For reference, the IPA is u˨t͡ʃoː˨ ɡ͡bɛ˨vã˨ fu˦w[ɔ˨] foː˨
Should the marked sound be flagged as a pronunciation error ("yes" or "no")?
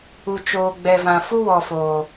no